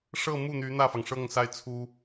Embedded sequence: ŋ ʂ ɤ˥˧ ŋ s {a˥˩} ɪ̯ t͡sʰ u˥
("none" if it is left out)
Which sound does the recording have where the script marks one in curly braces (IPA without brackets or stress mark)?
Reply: a˥˩